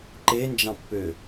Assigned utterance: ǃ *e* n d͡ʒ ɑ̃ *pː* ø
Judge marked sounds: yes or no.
yes, yes

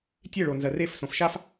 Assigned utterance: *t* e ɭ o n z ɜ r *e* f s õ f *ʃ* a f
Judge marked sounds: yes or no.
no, yes, yes

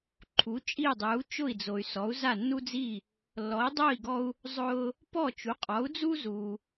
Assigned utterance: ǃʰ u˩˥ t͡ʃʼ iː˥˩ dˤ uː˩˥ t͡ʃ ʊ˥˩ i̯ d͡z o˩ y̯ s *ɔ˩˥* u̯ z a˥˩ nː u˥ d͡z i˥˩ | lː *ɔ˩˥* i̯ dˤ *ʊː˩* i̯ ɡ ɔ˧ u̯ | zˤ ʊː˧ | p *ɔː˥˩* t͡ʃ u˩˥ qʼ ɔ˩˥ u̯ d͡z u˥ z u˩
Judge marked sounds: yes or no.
yes, yes, no, no

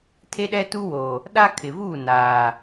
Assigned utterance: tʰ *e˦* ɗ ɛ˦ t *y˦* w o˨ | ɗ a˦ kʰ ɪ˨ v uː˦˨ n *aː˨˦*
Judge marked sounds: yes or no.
yes, no, no

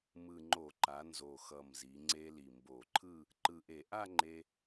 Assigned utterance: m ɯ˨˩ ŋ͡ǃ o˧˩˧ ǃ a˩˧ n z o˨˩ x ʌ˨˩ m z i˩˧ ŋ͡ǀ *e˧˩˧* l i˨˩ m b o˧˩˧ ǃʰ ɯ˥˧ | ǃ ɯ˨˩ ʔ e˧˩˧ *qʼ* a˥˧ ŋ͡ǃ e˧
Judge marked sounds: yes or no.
no, no

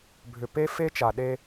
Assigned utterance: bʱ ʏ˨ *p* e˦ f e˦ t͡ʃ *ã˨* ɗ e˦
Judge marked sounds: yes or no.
yes, no

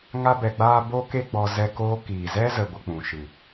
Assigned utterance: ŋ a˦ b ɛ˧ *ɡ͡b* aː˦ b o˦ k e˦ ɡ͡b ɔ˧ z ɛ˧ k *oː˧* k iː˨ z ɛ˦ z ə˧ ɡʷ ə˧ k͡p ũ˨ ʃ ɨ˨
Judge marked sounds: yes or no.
yes, yes

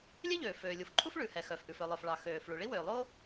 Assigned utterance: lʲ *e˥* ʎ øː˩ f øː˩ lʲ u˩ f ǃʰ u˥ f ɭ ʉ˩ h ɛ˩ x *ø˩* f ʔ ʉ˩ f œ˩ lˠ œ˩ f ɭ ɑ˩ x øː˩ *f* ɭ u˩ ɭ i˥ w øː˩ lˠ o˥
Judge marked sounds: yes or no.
yes, no, yes

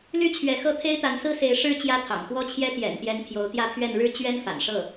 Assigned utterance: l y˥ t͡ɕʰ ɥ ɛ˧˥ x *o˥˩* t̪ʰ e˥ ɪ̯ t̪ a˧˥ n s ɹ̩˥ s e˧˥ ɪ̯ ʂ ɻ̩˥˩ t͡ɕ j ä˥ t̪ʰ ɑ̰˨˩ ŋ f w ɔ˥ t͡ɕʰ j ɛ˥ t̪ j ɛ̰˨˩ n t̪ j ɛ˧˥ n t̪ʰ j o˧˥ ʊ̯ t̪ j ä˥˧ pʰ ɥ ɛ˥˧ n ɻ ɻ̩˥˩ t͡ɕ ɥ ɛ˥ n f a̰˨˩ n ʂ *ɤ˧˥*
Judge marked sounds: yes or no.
no, no

